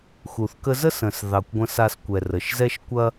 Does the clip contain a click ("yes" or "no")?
no